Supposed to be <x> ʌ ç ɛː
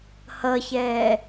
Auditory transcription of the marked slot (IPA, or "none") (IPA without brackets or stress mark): h